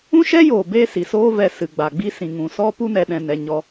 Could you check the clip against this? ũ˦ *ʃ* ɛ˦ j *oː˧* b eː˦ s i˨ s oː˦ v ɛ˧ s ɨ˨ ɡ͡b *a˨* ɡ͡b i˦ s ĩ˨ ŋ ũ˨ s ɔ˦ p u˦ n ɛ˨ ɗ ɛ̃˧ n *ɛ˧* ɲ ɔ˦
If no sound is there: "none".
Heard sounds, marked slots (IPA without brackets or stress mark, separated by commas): ʃ, oː˨, a˨, ɛ˧